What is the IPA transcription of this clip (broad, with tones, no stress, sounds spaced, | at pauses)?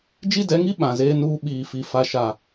d͡ʒ i˦ d ɛ˨˦ ŋ i˦ ɓ ã˨ z eː˦ n uː˦ ɓ iː˨ f i˨ f a˨ ʃ a˨